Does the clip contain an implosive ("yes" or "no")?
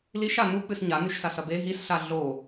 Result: no